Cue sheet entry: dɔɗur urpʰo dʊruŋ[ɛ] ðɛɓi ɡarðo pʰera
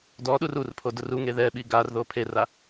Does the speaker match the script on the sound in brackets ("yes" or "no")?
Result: no